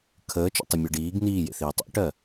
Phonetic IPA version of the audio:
kʰ əː t͡ʃ o̰ tˤ ə mʲ ɜ ɖ iː ɡ n iː j ḛ θ iː tˤ o̰ ʈ ɜ

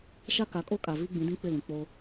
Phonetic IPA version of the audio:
ʃ a˦ k a˨˦ kʼ o˦ kʼ a˨ v i˦ ɡ͡b ĩ˨˦ d ĩ˦ k͡p ɪ˦˨ l ĩ˨ k͡p o˦

